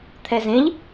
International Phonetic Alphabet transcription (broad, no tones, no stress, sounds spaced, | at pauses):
t̪ʰ ɛ z ẽ ʎ